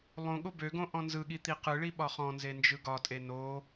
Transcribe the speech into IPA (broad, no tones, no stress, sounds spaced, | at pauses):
lˠ õ ɠ o b ø ɡ õ ʔ ɔ̃ n z ɯ ɠ i t̪ i q ɯ ɭ i ɓ ɒ χ ɔ̃ n z e n d͡ʒ ɯ ɡ ɒ tʼ e n o